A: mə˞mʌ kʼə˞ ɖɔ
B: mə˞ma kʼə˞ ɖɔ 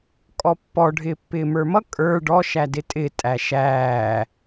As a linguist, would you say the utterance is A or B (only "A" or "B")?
A